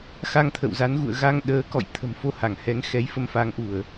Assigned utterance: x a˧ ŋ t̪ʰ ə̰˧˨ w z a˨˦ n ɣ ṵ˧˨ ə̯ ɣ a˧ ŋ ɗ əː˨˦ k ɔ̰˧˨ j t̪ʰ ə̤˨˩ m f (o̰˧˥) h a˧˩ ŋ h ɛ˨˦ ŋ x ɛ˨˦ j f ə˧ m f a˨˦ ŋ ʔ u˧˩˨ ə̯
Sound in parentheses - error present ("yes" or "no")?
yes